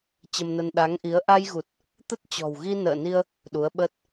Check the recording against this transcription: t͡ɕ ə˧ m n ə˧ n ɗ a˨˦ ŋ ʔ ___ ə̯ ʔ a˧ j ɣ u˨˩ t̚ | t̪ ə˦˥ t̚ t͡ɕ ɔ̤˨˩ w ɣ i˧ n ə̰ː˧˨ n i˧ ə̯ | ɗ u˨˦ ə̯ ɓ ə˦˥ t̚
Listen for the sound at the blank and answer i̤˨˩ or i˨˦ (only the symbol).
i˨˦